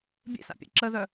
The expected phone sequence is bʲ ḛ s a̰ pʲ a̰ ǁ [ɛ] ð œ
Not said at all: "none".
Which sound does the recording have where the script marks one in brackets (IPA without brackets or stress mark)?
ə